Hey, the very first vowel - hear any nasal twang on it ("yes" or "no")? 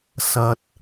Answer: no